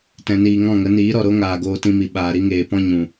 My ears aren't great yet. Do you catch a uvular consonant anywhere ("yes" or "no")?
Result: no